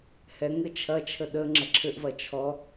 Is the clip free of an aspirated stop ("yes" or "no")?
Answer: no